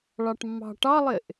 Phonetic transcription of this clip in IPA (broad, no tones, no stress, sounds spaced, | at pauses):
ɭ ɑ ʈ mː ɑ̤ ʈ ɑ lˠ e ʔ